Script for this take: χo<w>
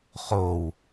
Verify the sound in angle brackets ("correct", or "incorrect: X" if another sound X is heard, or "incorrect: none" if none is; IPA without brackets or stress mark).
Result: correct